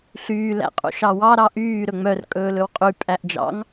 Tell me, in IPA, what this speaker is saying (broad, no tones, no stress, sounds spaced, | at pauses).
ɬ yː l æ̰ qʼ ṵ ʃ ɑ w ɑ ɾ ɑ ʔ yː ɾ ɵ ŋ͡m œ r kʼ ɵː l ɵ w qʼ y pʼ æ ʔ d͡ʒ ɑ̰ ŋ